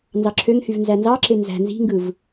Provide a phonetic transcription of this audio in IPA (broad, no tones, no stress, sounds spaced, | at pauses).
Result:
n z ɑ ǁʰ ø ŋ h y v n z æ n z ɑ ǁ e n z æ̤ n z i̤ ŋ ɡ ɯ v